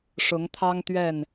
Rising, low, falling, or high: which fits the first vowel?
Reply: rising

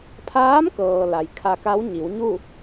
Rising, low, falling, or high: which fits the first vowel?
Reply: rising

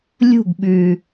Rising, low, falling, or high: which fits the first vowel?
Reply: falling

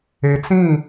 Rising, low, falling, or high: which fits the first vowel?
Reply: low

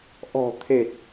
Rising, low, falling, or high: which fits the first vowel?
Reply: low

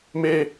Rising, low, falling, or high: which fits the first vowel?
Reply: high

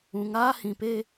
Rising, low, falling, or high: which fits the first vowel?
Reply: low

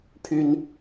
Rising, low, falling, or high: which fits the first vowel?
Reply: high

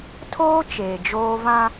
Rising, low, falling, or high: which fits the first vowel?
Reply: high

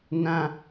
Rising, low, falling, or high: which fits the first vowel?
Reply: high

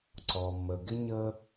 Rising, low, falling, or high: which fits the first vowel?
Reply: low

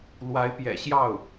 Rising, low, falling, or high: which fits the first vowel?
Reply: rising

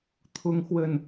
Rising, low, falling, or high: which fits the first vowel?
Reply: high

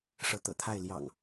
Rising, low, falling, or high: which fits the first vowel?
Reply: rising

